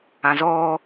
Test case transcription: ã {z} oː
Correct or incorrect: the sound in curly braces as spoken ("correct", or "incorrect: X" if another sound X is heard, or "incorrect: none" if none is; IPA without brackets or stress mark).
correct